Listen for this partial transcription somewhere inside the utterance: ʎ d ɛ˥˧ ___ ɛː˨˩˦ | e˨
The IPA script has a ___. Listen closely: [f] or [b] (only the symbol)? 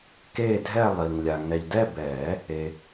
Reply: b